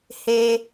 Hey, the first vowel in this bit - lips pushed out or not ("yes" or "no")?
no